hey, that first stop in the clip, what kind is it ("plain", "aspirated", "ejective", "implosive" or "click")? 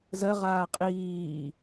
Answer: ejective